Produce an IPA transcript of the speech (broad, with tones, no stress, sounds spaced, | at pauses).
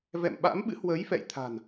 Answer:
v ɛ̰˧˨ m ɓ a̰˧˥ m ɓ ɨ̰˧˥ h w əː˨˦ j f ɛ̰˧˨ j t̪ʰ a̤˨˩ n